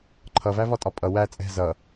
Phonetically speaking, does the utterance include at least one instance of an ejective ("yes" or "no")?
yes